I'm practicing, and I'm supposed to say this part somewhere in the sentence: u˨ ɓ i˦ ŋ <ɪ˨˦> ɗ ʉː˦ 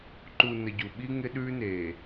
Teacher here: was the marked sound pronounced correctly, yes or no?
no